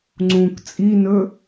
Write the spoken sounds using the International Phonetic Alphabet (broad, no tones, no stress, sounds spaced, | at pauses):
ŋ͡ǀ ũ k t͡sʼ i n ɵ